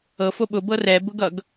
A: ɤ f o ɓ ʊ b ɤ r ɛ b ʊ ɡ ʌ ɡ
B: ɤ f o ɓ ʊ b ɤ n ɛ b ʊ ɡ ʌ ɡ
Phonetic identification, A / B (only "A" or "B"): A